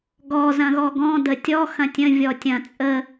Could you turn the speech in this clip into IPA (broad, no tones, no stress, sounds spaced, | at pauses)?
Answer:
ɡ ɔ z ɐ̃ ɣ ɔ ɡ ɔ̃ d ə tʲ ɔ x ɐ̃ tʲ ə̃ vʲ ɔ tʲ ɐ̃ t͡sʼ ə